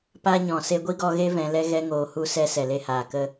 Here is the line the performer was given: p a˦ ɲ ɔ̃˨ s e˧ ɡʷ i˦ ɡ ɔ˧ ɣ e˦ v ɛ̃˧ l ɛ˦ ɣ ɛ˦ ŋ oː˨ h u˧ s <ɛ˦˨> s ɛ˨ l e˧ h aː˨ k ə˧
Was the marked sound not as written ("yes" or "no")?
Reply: yes